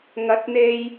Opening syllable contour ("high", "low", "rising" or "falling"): rising